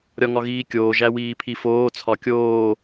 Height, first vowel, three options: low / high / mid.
low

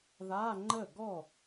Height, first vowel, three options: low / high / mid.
low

